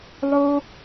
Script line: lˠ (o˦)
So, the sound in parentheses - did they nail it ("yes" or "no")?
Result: yes